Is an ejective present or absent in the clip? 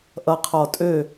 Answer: present